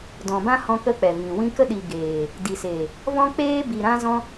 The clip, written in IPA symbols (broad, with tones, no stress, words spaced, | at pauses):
dɔ̃˨bã˦hɔ̃˧ kə˦k͡pɛ˨vĩ˨ wĩ˧ kə˧ɗi˨ ɡeː˨ | di˨seː˨ | vɔ̃˧k͡peː˧bi˨ ɾã˦zɔ̃˦